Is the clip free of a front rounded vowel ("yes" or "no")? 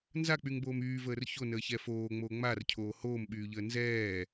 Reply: no